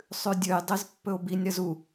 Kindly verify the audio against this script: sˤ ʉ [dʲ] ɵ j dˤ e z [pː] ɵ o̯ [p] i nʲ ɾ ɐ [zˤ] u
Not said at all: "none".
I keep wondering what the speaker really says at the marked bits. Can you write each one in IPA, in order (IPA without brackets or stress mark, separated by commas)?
dʲ, pː, b, z